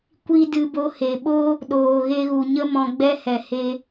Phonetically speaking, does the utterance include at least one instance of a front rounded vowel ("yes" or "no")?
no